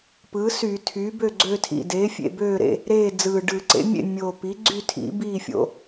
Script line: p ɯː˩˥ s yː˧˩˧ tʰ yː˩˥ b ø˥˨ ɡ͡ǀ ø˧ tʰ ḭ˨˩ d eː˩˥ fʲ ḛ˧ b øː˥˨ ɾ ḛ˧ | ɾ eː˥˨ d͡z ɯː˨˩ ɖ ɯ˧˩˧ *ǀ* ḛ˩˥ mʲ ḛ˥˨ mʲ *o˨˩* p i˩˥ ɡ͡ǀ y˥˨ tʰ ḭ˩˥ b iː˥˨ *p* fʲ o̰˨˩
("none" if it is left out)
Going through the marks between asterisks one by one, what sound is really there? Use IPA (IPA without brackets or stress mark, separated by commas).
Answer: ǀ, o˨˩, none